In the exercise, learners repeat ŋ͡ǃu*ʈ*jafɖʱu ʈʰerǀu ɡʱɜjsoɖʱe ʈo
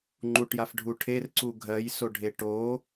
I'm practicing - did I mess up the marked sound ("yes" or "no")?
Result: no